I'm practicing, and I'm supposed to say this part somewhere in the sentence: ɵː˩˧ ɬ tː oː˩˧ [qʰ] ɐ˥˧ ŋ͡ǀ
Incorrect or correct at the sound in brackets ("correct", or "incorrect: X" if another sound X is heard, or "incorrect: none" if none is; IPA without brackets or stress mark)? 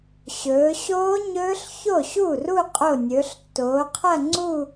correct